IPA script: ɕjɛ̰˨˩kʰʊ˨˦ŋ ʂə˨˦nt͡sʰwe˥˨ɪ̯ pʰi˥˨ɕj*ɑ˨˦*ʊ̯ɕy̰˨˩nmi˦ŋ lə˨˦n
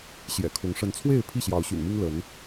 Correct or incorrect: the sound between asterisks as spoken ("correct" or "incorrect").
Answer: correct